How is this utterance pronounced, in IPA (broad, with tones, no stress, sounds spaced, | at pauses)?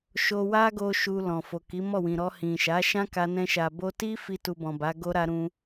ʃ o˧ w a˦ ɡ o˧ ʃ u˧ l ɔ̃˨ f o˨ k i˨˦ m ɔ˦˨ w ĩ˨ ɾ ɔ˧ h ĩ˨ ʃ a˨˦ ʃ ã˦ k a˧ n ɛ̃˧ ʃ a˨ b o˧ t i˦ f i˦ t u˧ b ɔ̃˨ b a˨˦ ɡ o˦ ɾ a˦ ɾ ũ˦